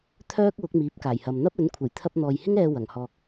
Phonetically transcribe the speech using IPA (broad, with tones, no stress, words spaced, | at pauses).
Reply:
t̪ʰœː˥k̚ wʊ˨˥k̚miː˨˥p̚kaː˨˩jhɐ˨m n̪ɐ˥p̚ɵ˨˥n kʷʰe˨˩jt̪ʰɐ˧p̚n̪ɔː˨jhɪ˥ŋ ɛː˧ wɐ˨˩ŋhɔː˨k̚